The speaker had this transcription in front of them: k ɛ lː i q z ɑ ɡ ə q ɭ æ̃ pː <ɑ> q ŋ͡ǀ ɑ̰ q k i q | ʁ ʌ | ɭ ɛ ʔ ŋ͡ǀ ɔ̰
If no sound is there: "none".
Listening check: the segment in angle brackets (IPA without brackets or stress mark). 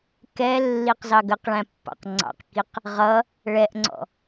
ɑ̰